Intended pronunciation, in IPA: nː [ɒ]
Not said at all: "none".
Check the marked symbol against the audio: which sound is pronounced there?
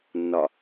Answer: ɒ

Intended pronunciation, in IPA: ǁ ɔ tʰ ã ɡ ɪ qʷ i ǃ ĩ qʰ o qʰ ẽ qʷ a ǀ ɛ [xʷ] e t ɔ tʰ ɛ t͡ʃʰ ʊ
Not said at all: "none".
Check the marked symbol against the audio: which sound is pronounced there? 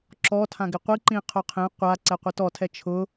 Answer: qʷ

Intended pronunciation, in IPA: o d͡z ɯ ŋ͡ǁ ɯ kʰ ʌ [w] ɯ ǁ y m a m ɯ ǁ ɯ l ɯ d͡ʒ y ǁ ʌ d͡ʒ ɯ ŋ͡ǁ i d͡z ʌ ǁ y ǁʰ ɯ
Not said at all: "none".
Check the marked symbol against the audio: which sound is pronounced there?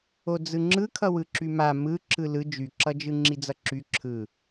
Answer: w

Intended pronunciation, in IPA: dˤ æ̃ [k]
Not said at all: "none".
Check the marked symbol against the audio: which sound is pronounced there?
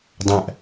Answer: ʔ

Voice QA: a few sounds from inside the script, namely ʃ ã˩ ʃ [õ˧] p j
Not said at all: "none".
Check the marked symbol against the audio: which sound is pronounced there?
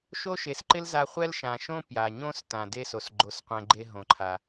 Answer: õ˥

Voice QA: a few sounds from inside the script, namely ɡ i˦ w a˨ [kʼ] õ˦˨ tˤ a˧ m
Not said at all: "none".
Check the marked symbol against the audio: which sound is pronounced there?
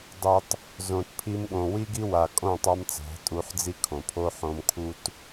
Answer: kʼ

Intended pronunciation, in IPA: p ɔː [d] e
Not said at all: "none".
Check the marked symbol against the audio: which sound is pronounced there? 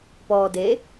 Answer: d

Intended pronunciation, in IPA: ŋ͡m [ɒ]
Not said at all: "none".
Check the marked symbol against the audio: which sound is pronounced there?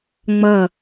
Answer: ʌ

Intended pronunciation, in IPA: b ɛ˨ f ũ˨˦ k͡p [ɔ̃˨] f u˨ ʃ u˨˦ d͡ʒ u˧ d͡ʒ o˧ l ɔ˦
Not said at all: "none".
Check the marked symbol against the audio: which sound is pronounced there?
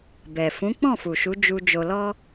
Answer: ɔ̃˦˨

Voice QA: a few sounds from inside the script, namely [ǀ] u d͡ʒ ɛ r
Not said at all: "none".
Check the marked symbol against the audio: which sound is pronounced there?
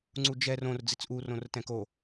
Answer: ŋ͡ǀ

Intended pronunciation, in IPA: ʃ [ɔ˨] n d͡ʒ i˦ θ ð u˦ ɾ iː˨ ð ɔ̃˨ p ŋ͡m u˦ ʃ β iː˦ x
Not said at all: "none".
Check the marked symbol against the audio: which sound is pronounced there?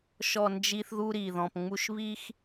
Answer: ɔ˨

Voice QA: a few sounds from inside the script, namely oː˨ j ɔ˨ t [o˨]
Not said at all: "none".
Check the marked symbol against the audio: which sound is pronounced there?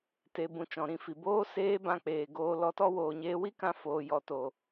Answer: o˨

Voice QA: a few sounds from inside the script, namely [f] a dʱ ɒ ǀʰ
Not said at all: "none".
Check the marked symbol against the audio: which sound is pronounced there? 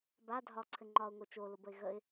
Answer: b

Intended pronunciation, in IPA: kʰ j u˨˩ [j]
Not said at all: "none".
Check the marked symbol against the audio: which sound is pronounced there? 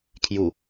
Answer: none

